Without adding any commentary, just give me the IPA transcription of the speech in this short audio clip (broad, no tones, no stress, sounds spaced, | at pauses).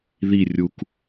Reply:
ð i rʲ u k